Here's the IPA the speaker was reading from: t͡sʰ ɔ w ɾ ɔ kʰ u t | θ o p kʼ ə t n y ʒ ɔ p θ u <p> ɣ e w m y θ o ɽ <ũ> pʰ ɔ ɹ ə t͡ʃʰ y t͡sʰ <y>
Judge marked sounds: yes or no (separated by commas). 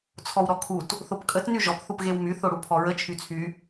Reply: yes, no, yes